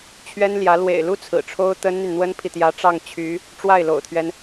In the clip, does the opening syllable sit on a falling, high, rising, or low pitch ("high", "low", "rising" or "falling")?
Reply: high